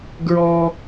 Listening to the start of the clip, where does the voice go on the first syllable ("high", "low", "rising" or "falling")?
high